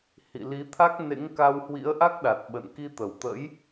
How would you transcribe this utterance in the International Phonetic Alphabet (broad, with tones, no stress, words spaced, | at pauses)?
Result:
hḭ˧˨li˨˦t̪ʰa˦˥k̚ nḛ˧˥ŋka˧w hwḭ˧˥ə̯ʔa˦˥k̚ɗa˨˩t̚ ɓə̰˧˨n ki˧t̪ə˧˩wt̪ə̰˧˥j